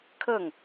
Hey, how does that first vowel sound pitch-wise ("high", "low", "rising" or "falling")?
falling